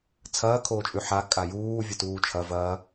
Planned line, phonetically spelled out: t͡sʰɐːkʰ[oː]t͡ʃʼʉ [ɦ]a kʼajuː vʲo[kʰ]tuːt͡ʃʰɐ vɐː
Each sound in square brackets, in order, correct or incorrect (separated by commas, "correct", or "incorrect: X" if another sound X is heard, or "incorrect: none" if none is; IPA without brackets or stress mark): correct, incorrect: ħ, incorrect: none